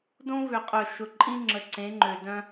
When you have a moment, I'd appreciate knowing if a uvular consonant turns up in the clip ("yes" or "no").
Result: yes